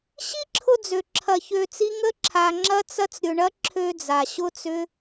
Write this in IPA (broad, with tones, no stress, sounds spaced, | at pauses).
ɕ i˦ ǁʰ ʊ˧ d͡z ø˨ ǁʰ ɐ˧ ç ø˧ t͡s i˦ ŋ ə˦ ǁʰ a˧ ŋ͡ǁ ɐ˦ t͡s ɐ˦ t͡s ɾʲ ʊ˧ ɳ ɐ˦ ǁʰ ø˧ d͡z a˨ ɕ ʊ˦ t͡s ʏ˦